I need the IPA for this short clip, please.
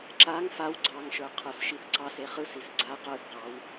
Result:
ǁaŋ faw ɡ͡ǀɑŋʃə˞ qʰə˞sʃiθǀɑse χɯsis ɡ͡ǀa qə˞θqɑw

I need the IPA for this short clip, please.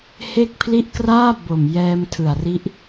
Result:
he˦˥k̚pʰli˦˥ʔkraː˥˩ bo˨˩mjɛː˧mtʰɯ˨˩a̯ ri˦˥ʔ

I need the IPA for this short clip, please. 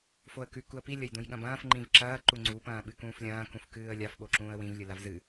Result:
foə̯kʉ kuə̯pi lʲɐjdũjɠɐ̃bɐ̃ːf ŋ͡ǃĩvǁɐː ǃuŋ͡ǀu pɐ̃ːɓɨkũːflʲɐ̃ː kũfkɨːə̯lʲaf ɓoǁũːə̯wĩv lʲɨlavzɨ

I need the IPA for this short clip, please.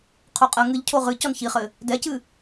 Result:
qʰoqʼɐ ŋɨʎ cʰoʁɨ cɔnçiχɘ | dɛcɨ

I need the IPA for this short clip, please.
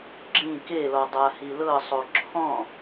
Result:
ɡ͡ǁĩ kelɔ dˤahilɤsˤo ǁʰɔ̃

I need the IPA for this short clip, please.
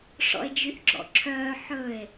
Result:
ʂɔ̰e̯d͡ʒyʔɡ͡ǁɔ̰ǁʰœː ħɵe̯

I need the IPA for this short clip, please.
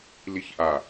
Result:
liçʔa

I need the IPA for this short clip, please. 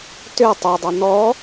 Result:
tø tˤodˤo nɔ

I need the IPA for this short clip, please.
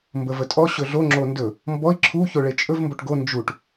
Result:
mbəvətʼɔ ɕɵɮo ŋ͡ǁondɵ | mbɔi̯ ǁʰu çoɭet͡ʃʼɵv mboʈɡo nd͡ʒuʈ

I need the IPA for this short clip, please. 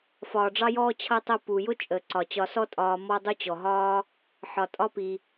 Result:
fɒː˨ɖ͡ʐɑ˦jɔː˦ t͡ɕʰʌ˦tˤʊ˦ pu˩ jʊ˥t͡ʃʼəː˩ǀɒ˩ t͡ɕɒ˨sɔ˦tʼɒː˨ mɔ˦dˤu˦t͡ɕɔ˩ɦɒː˥ | ħɒ˩tʼɒ˦pi˩

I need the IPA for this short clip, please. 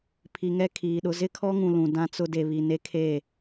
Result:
pʰi˨ŋɛ˦kʰiː˨ɗʊ˦ zɪ˦kʰɔ˦ŋũ˨ lũ˨dã˦t͡sʊ˦ de˨βi˨ ne˦kʰeː˦˨

